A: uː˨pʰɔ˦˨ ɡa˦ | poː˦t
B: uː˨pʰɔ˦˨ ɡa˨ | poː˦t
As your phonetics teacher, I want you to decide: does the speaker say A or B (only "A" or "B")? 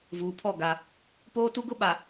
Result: A